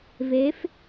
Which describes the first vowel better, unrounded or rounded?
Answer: unrounded